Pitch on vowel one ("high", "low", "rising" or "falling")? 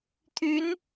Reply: rising